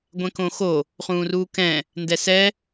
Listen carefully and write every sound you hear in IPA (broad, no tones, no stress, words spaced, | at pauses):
ɡʷɛ̃kõxo | χũːruːkɛ̃ | ndɛsɛ